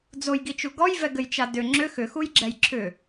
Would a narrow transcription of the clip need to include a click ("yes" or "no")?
yes